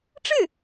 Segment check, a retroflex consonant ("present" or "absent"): present